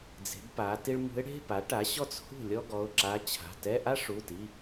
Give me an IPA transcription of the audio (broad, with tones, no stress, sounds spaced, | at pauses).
d͡z e̤˩˥ b p a˩˥ t i˥ ɭ m ṳ˧˥ ɪ̯ ɽ e̤˧˥˧ p a˩˥ ʈ a˩˥ ɕ ɔ˥ t͡s h ṳ˥˩ lʲ ɔ˥ ɡ ɔ˩˧˩ ʊ̯ ǁ a˧˥ t͡ɕʰ a̤˩˧˩ t ɛ˧˥˧ ʔ a˥ ʂ u˩˧˩ t i˩˧˩